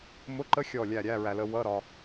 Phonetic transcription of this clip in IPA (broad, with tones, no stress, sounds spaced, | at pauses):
m ʊ˧˥˧ ǃ ə˦˥ xʲ ɔ˦˨ lʲ æ˦˨ ɾʲ æ˧˥˧ ɹ æ˨ l ə˧˥˧ w ʌ˧˥˧ ɾ ɒ˨